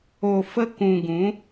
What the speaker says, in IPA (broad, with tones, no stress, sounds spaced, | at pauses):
o˨ f ə˧ k ũ˨ ɡ ũ˨˦